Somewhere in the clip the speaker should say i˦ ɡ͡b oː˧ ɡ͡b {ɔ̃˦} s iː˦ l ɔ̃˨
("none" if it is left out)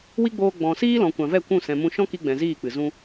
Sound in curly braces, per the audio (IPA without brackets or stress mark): ɔ̃˨